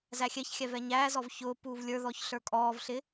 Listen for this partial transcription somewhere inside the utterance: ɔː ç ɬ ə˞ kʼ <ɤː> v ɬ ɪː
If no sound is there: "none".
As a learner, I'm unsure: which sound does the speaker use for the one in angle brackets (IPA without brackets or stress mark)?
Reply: ɔː